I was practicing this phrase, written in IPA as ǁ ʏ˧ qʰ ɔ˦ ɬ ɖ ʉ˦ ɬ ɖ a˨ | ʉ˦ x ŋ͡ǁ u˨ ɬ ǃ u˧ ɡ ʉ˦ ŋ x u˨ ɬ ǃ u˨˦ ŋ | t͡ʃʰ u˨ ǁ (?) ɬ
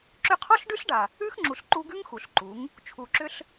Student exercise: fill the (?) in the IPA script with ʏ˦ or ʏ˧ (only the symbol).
ʏ˦